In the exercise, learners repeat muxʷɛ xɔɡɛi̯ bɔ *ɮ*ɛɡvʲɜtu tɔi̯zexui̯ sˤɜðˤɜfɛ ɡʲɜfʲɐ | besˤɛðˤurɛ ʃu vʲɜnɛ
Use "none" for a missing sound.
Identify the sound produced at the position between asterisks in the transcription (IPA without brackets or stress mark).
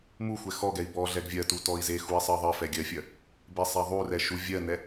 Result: ɮ